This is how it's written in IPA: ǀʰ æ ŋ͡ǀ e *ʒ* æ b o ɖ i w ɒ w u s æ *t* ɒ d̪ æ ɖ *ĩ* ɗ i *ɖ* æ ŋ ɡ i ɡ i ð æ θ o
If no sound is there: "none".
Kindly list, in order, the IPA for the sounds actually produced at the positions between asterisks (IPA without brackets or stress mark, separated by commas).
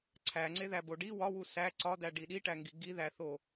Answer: ð, ǀ, i, ʈ